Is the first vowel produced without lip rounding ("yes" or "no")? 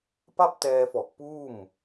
yes